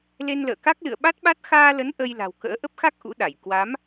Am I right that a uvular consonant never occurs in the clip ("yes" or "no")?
yes